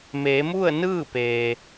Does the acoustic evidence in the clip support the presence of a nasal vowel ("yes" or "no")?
no